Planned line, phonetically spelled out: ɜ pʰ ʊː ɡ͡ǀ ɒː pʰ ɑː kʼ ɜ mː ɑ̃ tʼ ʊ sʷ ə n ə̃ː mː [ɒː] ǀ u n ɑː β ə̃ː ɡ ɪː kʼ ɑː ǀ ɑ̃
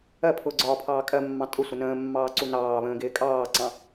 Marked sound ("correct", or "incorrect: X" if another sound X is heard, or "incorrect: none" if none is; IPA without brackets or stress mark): incorrect: ɑː